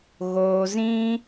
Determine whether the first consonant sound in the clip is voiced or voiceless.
voiced